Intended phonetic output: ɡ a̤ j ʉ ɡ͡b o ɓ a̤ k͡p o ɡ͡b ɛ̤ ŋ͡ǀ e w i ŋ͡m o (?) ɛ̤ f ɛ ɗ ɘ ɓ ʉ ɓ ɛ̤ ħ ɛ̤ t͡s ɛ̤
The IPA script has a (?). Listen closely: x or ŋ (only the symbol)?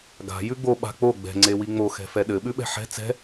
x